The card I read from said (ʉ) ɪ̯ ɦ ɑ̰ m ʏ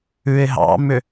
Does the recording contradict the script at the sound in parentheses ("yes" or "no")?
no